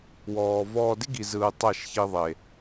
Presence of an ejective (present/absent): absent